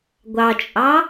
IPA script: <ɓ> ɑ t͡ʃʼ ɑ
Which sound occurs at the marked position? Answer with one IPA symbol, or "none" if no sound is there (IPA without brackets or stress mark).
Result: ɡʷ